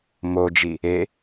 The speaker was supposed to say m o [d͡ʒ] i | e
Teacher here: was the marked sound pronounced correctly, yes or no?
yes